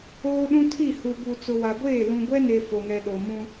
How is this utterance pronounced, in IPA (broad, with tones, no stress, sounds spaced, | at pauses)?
oː˦ ɗ ũ˦ tʰ i˦˨ h u˨ b u˨ t͡s ʊ˨ w a˨ ɡʷ eː˦˨ l ũ˨ ɡʷ ɛ˦ n e˨ f o˨ ŋ ɛ˨ ɗ o˨ m ũ˦